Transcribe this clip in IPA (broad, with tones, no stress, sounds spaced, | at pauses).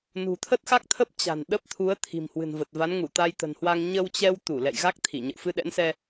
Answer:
n ṳ˨˩ t̪ʰ ə˦˥ t̚ x a˦˥ k̚ t̪ʰ ə˦˥ p̚ t͡ɕ a̤˨˩ n ɗ ə˦˥ p̚ t̪ʰ u˨˦ ə̯ t̪ʰ i̤˨˩ m h w ɨ̤˨˩ n v ə˨˩ t̚ v a˨˦ n ŋ u˧˩ t̪ a˧ j t̪ ə̤˨˩ n h w a˧ ŋ ɲ ə˧ w t͡ɕ ɛ˧ w t̪ u˧˩ l ɛ̰˧˨ j ɣ a˦˥ k̚ t̪ʰ i˧˩ ɲ ə̰˧˨ w f ɨ˧ ɗ ɛ̰˧˥ n s ɛ˧